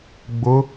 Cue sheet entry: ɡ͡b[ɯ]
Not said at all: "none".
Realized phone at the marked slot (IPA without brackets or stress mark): ʊ